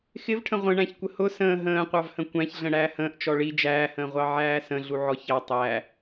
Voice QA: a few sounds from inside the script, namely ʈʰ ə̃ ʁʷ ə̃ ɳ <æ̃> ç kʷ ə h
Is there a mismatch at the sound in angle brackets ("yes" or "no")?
no